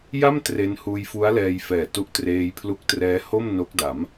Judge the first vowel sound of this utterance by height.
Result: low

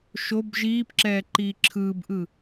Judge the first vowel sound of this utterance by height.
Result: mid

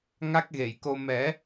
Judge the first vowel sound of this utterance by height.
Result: low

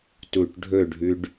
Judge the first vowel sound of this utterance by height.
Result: high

